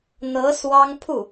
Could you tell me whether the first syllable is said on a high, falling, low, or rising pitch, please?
rising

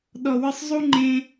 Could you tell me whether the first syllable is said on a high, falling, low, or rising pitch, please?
low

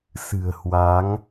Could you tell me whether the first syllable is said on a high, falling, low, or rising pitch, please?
low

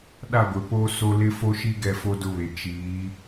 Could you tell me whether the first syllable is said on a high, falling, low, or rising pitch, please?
falling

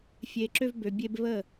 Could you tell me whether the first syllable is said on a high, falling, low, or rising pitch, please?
low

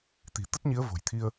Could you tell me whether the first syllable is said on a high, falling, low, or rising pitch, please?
low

